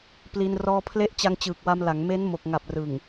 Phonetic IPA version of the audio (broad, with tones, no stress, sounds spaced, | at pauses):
p l i˧ n r ɔː˧ pʰ l e˦˥ ʔ t͡ɕ a˧ ŋ t͡ɕ ɯː˨˩ k̚ w a˧ m l a˩˦ ŋ m e˦˥ n m o˨˩ k̚ ŋ a˨˩ p̚ r ɯ˨˩ ŋ